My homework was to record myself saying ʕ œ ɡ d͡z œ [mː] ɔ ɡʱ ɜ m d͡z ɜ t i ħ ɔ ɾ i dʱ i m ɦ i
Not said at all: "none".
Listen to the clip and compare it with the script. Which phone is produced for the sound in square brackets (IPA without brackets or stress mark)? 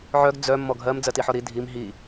mː